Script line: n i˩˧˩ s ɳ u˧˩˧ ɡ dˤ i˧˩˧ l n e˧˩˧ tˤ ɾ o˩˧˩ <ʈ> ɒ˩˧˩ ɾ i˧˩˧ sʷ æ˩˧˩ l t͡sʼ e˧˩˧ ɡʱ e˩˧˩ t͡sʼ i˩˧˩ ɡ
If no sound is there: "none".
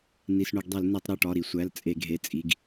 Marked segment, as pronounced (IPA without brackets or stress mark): ʈ